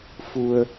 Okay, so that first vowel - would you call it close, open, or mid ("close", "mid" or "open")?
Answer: close